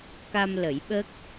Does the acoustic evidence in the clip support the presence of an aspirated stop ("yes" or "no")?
no